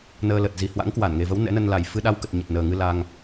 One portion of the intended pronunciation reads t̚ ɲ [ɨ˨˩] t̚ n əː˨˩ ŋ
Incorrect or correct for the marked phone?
incorrect: ə˨˩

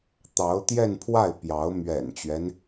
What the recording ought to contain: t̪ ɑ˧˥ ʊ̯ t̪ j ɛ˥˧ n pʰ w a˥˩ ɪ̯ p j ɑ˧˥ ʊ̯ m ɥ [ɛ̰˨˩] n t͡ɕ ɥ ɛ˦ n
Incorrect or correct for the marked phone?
correct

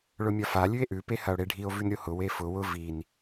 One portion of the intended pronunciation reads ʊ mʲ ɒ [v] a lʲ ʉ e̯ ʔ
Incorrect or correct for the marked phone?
incorrect: f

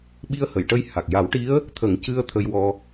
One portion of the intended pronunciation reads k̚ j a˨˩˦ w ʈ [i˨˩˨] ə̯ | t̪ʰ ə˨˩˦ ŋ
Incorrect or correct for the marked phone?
incorrect: i˧˥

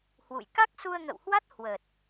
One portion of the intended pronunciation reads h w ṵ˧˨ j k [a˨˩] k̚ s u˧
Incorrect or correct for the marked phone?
incorrect: a˦˥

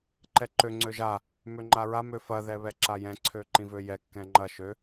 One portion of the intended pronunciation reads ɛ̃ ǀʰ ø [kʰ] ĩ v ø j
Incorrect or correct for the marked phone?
incorrect: ǃ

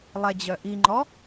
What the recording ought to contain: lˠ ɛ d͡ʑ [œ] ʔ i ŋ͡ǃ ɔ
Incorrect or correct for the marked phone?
correct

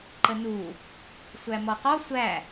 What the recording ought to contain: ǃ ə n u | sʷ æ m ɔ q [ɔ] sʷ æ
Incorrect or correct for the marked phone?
correct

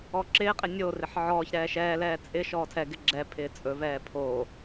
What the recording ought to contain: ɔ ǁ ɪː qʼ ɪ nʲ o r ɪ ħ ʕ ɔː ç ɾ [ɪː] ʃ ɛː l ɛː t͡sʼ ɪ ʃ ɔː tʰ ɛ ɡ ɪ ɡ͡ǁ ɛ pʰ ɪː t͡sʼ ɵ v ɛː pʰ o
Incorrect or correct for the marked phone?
incorrect: ɛː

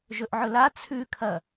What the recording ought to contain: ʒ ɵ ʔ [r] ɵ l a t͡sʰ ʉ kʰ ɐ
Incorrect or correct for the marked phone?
incorrect: ʕ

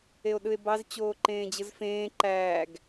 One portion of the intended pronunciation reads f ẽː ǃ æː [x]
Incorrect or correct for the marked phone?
incorrect: ɡ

